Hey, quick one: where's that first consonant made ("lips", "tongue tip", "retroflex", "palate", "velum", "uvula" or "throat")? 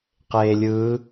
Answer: uvula